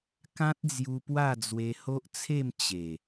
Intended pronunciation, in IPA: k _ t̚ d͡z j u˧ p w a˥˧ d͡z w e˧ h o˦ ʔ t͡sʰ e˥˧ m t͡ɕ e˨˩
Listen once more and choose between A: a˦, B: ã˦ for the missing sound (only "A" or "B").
B